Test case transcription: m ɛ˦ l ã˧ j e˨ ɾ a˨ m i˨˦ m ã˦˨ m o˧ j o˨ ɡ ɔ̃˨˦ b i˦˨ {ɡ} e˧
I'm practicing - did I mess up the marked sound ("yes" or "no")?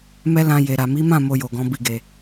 no